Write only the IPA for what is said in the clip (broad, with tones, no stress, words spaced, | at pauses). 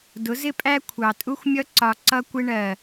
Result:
dʊ˨˦zɪ˦pʼæ˦ kʷʰɑ˨tʼu˦xʷmʲʌ˦ ǀɒ˨ ǀʌ˦kʷɪ˦ ɳɜ˨